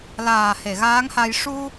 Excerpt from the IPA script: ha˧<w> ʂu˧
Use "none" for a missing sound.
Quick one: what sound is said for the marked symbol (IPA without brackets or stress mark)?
j